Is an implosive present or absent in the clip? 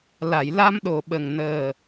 present